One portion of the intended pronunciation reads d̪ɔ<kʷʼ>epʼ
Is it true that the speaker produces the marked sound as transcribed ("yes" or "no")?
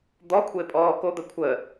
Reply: no